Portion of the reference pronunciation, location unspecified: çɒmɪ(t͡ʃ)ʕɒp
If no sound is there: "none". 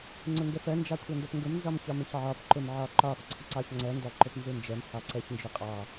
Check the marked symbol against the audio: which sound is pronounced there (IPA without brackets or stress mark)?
ç